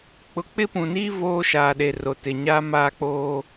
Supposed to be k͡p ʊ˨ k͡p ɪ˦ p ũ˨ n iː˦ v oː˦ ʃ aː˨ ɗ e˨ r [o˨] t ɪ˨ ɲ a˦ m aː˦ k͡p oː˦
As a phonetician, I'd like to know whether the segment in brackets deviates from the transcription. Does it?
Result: no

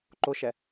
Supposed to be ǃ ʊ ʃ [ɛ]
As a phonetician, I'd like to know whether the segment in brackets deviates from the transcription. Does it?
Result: no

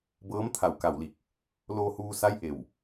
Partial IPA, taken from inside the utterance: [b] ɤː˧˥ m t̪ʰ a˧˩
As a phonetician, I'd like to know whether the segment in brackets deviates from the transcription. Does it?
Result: no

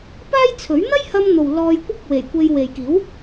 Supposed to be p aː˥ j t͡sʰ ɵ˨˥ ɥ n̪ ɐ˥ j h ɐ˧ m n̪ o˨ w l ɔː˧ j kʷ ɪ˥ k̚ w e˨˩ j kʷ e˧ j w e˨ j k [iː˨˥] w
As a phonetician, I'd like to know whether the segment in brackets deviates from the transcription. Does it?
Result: no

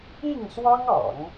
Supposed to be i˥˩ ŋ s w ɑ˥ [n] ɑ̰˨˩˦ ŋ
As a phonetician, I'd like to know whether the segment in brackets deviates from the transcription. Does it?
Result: yes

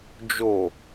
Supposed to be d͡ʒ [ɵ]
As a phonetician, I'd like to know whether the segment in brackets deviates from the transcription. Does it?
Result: yes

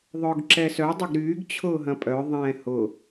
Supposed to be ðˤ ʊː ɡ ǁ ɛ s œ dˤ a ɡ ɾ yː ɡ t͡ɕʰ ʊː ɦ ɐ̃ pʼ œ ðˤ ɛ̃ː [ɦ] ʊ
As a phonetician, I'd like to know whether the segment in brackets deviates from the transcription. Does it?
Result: yes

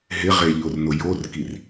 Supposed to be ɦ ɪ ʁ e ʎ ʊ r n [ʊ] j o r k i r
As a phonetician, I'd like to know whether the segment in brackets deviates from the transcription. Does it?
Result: no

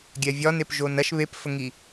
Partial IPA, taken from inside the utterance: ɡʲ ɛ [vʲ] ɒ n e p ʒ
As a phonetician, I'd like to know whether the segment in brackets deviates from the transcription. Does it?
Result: no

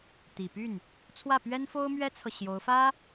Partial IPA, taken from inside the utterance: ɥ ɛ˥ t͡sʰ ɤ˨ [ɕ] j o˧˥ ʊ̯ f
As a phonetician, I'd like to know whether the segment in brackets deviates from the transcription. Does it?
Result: no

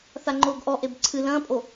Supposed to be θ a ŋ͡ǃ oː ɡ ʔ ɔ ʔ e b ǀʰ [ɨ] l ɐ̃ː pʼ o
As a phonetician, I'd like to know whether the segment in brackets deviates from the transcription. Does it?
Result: no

